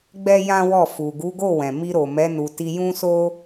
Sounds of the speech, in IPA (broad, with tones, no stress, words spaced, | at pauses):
ɡ͡bɛ˦jã˦ wɔ˦˨ fu˨ɡu˨˦ɡo˦˨ wɛ̃˨mi˧ɾo˨mɛ˨˦ nu˧ ti˧jũ˦so˦